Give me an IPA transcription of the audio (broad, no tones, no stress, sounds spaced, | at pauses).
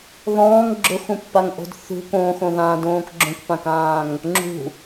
ð ɔ̃ː ŋ ɡ͡ǁ ʊ x ũ pː a ŋ ʔ o̤ d θ ṳ k õ x õ ð ãː d õː k ɡ͡ǁ õ k p ã k ãː ŋ | ŋ͡ǁ ṳ